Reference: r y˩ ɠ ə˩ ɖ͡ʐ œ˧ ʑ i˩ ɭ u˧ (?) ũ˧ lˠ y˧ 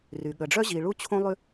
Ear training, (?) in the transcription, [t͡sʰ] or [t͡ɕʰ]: t͡ɕʰ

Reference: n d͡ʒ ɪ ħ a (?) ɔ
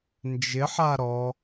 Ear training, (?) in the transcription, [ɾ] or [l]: ɾ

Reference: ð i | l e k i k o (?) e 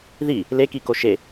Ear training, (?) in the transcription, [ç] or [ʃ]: ʃ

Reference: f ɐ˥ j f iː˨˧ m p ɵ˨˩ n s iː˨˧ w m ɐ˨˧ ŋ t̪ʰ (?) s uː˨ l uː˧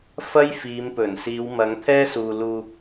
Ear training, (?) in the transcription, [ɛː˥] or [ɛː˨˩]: ɛː˥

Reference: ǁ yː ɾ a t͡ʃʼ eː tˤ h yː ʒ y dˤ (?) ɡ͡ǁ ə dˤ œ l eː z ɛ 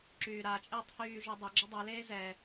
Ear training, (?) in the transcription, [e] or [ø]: ø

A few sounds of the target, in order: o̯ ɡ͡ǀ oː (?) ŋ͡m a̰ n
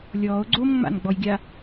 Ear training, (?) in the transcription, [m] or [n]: m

